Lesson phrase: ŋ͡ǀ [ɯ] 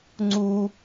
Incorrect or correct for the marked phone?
incorrect: u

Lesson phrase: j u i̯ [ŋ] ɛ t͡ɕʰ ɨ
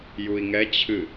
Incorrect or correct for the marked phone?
correct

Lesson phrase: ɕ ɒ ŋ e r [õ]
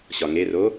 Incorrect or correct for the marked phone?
incorrect: o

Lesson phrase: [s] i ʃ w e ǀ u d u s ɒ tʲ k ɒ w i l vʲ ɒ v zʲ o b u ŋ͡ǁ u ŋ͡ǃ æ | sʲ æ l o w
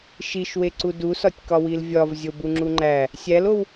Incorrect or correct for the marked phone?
incorrect: ʃ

